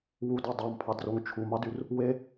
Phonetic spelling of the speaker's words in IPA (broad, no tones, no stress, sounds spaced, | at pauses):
w u d ɑ dˤ ɑ m pʰ ɑ d r o ŋ t͡ʃʰ u m ɑ d y r | w e